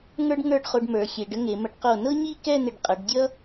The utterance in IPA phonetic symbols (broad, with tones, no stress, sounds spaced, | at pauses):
ŋ ə˞˥ ɖ ŋ ə˞˥˧ ɖ χ o˧ ɖ m ə˞˩˧ xʲ e˩˧ ɖ ə˥ ŋ e˩˧ m ə˧ ɖ q o˧˩ n ɤ˥ ɲ i˥˧ k ɛ˥˧ n̪ ɪ˧˩ ɖ qʼ ʌ˩˧ ɖ dʲ ʌ˥